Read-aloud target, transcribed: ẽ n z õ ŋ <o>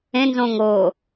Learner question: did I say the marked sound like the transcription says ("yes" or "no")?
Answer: no